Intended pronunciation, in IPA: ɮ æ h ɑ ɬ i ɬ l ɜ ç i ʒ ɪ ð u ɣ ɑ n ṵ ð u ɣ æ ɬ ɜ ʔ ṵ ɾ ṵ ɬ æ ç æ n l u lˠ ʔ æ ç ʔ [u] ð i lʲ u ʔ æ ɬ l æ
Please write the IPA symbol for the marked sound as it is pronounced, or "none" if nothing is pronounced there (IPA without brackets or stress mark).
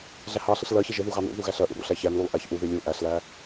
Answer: u